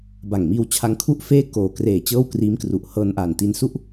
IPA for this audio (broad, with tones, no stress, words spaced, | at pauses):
ba˨˩ŋmiː˧wt͡ɕʰa˧ŋkʰu˥˩ʔ feː˥˩ koː˨˩kreː˨˩ t͡ɕɤː˥˩wkriː˦˥mkru˨˩ʔ hɤː˧nʔaː˨˩nti˧n su˥˩ʔ